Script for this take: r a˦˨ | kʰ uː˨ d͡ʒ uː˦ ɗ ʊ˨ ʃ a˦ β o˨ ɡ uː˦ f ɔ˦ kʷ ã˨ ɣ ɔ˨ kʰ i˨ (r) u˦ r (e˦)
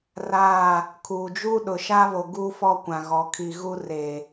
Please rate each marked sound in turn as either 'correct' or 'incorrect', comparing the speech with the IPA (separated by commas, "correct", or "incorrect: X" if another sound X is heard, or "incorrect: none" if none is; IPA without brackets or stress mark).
incorrect: ɣ, incorrect: e˨